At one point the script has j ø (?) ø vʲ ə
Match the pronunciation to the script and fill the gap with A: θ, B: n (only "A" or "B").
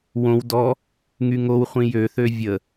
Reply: A